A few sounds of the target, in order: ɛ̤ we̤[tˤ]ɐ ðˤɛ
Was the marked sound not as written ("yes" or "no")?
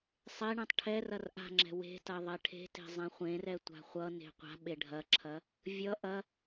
yes